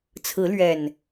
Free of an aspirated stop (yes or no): no